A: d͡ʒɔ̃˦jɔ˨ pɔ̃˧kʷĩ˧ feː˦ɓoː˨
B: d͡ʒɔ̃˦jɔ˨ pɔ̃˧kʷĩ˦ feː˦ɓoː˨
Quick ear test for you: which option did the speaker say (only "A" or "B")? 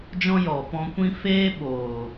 B